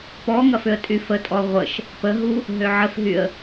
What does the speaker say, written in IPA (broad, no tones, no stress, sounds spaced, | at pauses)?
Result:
p ɔ ŋ ɐ f ʏ ə̯ tʼ y f ə tʼ ɔ ʁʷ ə ʃ | p ə ɦ u | ɦ ø ʕ ə f ɦ y ə̯